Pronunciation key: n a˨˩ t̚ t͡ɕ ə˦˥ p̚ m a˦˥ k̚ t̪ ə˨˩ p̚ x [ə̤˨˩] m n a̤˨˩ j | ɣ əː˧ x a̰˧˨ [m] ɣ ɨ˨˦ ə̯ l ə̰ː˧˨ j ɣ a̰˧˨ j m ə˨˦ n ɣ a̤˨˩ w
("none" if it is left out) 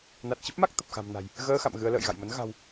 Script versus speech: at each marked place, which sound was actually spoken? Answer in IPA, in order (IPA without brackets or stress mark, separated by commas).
a̤˨˩, m